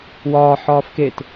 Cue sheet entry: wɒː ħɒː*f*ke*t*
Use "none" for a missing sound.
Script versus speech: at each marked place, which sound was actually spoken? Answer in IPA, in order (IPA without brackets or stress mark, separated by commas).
f, t